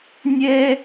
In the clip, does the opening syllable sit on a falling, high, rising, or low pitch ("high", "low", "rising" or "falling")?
high